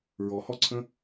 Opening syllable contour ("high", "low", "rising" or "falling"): low